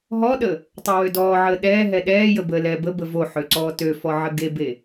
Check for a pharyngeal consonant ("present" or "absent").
present